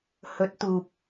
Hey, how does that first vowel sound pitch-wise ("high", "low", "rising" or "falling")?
rising